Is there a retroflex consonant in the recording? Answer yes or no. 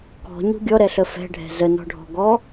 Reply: yes